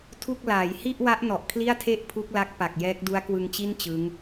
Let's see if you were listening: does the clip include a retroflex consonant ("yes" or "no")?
no